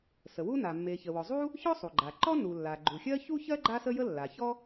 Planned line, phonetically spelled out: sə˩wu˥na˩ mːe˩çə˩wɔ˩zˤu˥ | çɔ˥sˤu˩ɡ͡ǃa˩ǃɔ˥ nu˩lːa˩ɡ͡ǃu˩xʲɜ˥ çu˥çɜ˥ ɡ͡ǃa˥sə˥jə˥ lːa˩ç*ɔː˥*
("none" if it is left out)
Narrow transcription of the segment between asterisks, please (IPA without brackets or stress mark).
ɔ˥